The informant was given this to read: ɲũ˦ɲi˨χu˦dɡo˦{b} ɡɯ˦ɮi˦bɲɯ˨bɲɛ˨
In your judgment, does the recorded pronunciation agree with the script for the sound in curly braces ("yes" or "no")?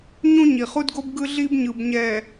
yes